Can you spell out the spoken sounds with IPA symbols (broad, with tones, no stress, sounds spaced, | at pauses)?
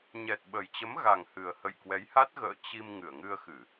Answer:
ɲ ɛ˨˩ t̚ ɓ ə˨˩ j t͡ɕ ə˨˦ m ɣ a˨˩ ŋ h ɨ˨˩ ə̯ h ə̰˧˨ j k w ɛ˨˦ j h a˦˥ t̚ ɣ ə̰ː˧˨ t͡ɕ i˧ m ŋ ɨ˧˩ ə̯ ŋ ɨ˧ ə̯ x ɨ˧˩˨